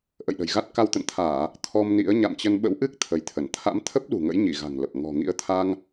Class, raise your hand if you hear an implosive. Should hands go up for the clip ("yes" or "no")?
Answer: yes